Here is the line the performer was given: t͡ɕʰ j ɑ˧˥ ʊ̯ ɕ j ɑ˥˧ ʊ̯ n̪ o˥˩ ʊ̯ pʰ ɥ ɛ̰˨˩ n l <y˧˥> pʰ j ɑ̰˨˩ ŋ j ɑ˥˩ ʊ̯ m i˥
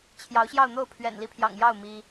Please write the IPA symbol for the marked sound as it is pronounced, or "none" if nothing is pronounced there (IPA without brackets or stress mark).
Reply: i˧˥